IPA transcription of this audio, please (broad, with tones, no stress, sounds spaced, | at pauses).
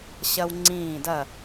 ɕ ɐ˦ w ŋ͡ǀ ĩː˦˨ d ɐ˦˨